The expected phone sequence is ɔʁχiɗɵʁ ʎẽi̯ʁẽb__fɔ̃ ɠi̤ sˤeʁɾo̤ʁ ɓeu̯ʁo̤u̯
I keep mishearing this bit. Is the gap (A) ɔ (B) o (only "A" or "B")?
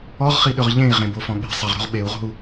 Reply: B